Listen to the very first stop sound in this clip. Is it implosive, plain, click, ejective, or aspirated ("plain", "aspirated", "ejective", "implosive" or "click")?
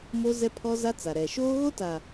aspirated